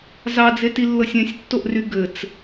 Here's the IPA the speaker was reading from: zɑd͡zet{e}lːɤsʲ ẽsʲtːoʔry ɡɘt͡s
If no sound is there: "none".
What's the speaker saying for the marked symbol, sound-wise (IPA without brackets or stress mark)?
i